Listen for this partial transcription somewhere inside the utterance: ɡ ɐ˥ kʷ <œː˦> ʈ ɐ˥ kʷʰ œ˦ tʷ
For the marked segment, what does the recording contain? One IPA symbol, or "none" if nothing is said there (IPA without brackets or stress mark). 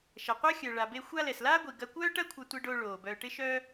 œː˥